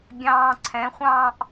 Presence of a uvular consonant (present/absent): present